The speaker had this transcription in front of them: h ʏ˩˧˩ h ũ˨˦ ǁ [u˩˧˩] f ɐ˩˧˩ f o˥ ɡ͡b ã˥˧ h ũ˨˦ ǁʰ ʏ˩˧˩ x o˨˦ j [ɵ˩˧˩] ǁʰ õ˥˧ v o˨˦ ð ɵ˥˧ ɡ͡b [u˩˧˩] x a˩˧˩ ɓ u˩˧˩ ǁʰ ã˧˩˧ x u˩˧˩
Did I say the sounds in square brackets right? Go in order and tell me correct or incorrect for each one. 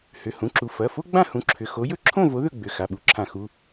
correct, incorrect: ɵ˥, incorrect: ʏ˩˧˩

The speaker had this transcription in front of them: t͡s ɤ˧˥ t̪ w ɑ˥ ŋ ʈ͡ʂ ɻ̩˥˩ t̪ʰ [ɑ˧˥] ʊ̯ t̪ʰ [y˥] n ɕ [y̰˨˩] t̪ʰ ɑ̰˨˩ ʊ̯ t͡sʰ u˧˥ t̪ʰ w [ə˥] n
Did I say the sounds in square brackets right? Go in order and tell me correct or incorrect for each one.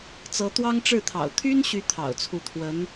incorrect: ɑ̰˨˩, correct, incorrect: y˧˥, incorrect: ə˧˥

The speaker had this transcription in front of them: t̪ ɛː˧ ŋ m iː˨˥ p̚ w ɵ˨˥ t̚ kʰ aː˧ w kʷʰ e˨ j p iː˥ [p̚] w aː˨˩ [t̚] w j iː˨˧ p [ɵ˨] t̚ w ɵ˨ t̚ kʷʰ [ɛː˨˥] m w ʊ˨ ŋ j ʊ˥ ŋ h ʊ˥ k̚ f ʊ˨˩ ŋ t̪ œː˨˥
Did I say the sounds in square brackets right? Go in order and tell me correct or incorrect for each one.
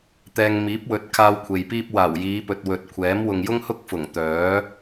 correct, incorrect: none, correct, correct

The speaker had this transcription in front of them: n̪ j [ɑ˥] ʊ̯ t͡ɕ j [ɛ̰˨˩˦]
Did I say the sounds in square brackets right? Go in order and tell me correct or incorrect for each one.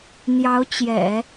incorrect: ɑ˧˥, correct

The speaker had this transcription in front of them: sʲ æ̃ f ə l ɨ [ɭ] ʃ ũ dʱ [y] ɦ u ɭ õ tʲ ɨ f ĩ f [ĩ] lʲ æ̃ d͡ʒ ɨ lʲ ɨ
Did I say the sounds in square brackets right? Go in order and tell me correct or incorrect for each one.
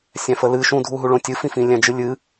incorrect: none, incorrect: u, correct

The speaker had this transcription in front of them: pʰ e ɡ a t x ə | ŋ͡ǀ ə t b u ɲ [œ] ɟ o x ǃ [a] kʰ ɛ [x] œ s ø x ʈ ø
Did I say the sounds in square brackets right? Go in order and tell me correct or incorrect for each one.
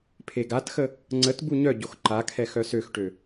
correct, correct, correct

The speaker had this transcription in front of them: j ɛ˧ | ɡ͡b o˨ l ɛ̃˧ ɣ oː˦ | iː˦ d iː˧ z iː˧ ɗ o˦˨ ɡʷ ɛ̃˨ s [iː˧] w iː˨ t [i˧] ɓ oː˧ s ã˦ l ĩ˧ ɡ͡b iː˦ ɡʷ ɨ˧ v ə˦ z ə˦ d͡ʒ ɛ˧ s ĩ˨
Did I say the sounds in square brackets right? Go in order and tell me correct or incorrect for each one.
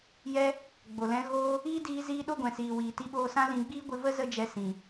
incorrect: iː˨, correct

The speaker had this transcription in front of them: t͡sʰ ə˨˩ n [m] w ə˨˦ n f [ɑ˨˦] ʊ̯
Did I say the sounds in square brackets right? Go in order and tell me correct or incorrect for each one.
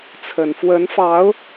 incorrect: f, correct

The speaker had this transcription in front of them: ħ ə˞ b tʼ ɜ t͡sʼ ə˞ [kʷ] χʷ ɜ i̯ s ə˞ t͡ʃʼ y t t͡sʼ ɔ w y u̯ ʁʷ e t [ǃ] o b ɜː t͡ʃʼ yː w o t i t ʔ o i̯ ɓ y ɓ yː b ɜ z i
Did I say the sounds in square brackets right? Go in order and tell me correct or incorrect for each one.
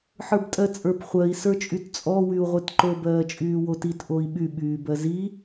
incorrect: p, correct

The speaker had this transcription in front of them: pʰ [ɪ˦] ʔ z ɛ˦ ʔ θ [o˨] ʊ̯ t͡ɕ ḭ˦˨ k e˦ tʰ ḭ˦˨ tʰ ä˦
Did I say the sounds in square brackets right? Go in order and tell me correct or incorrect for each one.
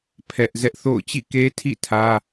incorrect: ɛ˦, incorrect: o̰˦˨

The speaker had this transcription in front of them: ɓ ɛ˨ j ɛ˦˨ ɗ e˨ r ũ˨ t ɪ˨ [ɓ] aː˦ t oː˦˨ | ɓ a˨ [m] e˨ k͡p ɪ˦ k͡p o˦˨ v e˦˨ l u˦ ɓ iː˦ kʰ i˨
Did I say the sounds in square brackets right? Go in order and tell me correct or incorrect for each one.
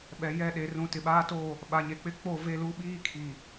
correct, incorrect: ɲ

